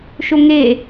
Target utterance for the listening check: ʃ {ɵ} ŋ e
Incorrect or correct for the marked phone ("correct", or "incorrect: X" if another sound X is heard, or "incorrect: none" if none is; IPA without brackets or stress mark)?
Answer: incorrect: o